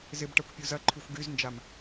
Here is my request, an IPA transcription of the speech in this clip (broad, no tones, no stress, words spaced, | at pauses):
zɪb ʈakʷpʲuzɐǃʰyxʷ ɡyznd͡ʒam